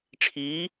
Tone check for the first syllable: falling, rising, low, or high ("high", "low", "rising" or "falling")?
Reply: rising